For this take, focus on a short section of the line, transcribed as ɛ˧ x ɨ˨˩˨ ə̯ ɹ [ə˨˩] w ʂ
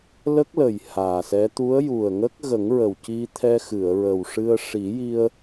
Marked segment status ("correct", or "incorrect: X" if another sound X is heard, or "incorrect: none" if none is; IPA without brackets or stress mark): correct